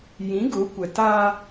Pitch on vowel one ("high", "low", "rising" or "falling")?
rising